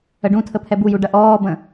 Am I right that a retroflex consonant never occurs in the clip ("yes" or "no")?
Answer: no